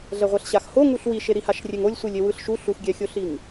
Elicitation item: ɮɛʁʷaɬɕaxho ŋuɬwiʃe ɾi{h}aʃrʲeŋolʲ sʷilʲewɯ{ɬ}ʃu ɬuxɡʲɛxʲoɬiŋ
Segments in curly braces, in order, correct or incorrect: correct, correct

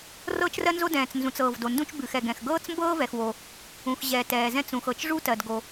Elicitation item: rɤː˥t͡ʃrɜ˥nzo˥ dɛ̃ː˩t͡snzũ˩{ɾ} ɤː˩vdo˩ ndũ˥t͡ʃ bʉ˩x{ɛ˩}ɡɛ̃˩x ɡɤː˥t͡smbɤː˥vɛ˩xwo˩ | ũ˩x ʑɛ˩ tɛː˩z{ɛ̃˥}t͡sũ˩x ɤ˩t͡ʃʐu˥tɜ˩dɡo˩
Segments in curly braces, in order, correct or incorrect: incorrect, correct, correct

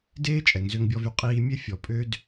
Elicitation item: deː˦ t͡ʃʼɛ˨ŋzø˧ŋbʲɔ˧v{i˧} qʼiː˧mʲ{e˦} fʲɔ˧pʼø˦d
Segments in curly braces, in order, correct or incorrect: incorrect, correct

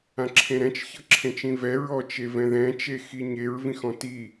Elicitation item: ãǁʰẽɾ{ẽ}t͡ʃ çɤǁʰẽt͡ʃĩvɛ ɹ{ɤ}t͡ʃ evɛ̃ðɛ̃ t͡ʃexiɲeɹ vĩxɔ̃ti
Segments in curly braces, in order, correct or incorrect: incorrect, incorrect

